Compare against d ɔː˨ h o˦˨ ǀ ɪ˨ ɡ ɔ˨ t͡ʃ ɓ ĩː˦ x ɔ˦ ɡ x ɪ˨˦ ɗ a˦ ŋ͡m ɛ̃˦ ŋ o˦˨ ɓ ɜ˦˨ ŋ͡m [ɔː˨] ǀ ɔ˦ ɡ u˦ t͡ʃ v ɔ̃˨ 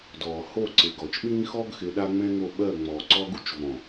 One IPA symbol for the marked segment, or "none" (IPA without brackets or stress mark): ɔː˨